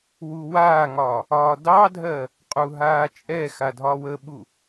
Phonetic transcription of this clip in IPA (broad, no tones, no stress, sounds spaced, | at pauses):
w u w aː ŋ ɒː | ɒː d ɑ dʱ ɜ | qʼ u ɦ aː t͡ʃʼ ɛ x a dʱ ɒ w ə ɓ u